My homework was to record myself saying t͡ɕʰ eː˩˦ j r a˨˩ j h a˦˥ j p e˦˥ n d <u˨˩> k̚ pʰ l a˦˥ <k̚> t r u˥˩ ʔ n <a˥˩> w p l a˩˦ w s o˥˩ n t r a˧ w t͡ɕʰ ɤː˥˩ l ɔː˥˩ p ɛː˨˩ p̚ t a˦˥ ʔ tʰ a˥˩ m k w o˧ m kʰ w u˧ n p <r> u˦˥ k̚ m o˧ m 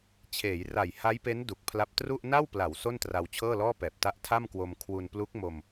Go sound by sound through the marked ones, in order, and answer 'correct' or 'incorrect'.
correct, incorrect: p̚, correct, incorrect: l

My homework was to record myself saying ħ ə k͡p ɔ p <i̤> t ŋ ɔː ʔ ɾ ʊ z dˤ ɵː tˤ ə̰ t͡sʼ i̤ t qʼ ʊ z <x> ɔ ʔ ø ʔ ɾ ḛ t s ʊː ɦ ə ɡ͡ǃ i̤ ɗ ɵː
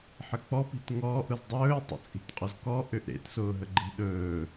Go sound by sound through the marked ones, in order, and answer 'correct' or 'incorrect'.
correct, incorrect: k

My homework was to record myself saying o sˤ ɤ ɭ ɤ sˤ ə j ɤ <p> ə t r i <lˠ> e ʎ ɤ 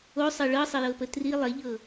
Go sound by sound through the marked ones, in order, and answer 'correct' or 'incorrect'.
correct, correct

